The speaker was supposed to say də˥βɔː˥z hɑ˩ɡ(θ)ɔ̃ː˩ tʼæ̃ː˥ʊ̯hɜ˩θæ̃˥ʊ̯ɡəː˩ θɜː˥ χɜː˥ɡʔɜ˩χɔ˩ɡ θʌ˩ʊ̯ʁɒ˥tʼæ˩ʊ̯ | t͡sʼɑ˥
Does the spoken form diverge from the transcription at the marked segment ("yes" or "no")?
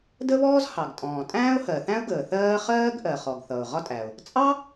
yes